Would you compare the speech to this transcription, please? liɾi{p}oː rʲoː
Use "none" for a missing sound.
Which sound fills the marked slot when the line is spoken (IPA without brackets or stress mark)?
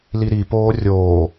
p